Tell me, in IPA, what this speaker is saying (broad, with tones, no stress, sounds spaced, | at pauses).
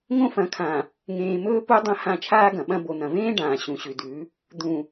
ŋ õ˦ f ɐ̃˨˦ kʰ ã˨ | ŋ ẽː˨ m ɵː˦ p u˦ dˤ ɐ̃˦ h ã˦˨ t͡ʃʰ aː˦ ɡ ɐ̃˨ ɓ ɐ̃˦ b o˨ n̪ ɐ̃˨ v ẽː˦ ɖ ãː˨ ɕ ũ˨ ɕ ʉ˨ d ʉ˨˦ | d̪ ũ˨